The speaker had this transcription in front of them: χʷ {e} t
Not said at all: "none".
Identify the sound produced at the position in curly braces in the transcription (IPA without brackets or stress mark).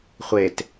e